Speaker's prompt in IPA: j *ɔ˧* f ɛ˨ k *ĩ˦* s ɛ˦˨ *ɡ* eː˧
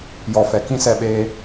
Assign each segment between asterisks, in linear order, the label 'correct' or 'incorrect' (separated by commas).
incorrect, correct, incorrect